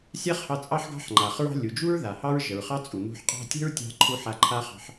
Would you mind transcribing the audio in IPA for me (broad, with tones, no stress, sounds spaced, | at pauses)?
sʲ a˥ χ h ɑ˧ t͡sʼ ɑ˥ ħ ɡ ɑ̤˥ ħ ŋ͡ǃ a˩ χ ɹ ɑ̤˥ lʲ u˩ d͡ʒ u˥ ɹ ð a˩ h ɑ˥ ɹ ʒ ə˩ ɹ χ ɑ˥ t͡sʼ u˩ n ṳ˧ ħ qʼ ɑ̤˥ tʲ ə̤˥ ɹ tʲ ɑ̤˧ ǃʰ u˧ ħ a˧ ǃʰ a˥ χ ɑ̤˧ ħ